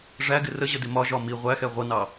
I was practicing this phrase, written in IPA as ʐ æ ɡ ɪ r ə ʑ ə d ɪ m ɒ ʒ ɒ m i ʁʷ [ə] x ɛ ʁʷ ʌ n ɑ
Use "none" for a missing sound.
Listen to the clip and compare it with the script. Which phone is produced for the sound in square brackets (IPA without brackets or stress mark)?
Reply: æ